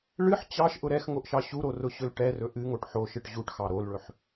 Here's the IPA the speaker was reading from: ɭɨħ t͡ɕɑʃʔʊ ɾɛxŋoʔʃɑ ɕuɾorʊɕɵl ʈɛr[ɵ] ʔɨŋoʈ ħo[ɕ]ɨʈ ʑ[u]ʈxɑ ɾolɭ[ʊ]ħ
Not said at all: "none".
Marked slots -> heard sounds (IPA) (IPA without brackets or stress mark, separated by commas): ɵ, ʃ, u, ɵ